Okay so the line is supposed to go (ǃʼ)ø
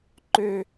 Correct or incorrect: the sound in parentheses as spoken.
incorrect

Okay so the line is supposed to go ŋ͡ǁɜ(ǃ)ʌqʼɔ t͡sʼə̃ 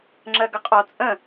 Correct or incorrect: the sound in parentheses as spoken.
incorrect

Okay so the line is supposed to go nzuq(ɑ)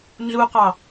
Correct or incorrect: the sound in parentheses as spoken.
correct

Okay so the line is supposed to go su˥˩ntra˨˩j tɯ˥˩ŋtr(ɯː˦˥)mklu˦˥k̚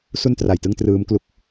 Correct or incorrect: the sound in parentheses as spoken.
correct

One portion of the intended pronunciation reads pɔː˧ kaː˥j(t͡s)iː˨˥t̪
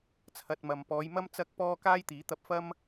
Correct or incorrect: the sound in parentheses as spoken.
incorrect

